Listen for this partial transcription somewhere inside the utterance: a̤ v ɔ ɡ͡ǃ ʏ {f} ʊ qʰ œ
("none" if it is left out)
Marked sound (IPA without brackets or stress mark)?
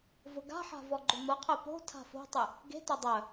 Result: m